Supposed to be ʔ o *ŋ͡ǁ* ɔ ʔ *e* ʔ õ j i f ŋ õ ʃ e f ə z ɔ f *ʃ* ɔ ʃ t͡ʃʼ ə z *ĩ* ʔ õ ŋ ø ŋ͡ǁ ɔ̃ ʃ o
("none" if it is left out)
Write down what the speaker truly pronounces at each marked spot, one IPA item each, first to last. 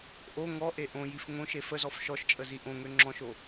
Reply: ŋ, e, ʃ, i

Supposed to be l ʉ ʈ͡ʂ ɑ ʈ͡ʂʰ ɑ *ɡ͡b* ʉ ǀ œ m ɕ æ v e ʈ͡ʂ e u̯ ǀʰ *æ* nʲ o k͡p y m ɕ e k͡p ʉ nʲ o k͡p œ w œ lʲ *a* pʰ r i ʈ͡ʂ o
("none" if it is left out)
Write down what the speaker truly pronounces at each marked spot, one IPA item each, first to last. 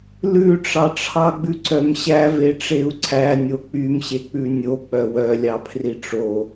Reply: ɡ͡b, æ, ɑ

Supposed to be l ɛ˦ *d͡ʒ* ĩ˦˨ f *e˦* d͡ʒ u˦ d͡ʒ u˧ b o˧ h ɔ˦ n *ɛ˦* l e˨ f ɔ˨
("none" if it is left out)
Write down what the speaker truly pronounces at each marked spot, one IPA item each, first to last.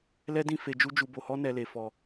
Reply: d, e˧, ɛ˧

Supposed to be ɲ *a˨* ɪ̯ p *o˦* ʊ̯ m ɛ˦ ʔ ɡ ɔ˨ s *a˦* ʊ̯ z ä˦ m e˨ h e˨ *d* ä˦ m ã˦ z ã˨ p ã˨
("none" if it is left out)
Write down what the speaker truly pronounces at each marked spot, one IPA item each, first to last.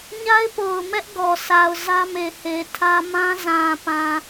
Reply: a˦, o˨, a˨, tʰ

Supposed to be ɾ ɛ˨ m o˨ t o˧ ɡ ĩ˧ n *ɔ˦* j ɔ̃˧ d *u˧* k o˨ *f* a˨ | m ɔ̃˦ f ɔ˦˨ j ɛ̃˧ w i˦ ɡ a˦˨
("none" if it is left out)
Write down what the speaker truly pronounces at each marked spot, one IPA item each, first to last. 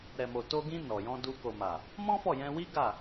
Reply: ɔ˨, u˧, m

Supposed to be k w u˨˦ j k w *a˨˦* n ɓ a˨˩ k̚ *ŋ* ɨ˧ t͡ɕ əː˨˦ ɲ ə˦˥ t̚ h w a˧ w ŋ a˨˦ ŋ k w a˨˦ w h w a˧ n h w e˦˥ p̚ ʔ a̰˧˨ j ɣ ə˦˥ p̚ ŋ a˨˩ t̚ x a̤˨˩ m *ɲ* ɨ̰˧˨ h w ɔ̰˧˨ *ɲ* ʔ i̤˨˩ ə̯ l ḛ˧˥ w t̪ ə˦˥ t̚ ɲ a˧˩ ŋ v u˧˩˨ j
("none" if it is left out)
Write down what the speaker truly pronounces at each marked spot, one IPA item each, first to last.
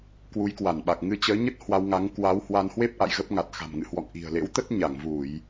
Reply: a˧˩, ŋ, ŋ, ŋ

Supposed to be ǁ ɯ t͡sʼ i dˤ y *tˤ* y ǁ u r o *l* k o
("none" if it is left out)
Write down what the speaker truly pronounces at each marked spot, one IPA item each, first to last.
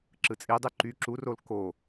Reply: ǃ, l

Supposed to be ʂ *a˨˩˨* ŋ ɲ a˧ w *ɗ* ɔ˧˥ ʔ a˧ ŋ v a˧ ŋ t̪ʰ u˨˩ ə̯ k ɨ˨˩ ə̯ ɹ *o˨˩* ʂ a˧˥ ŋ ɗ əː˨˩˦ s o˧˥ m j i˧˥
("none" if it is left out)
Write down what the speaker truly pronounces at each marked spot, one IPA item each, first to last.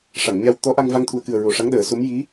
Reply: a˨˩˨, t̪, o˨˩

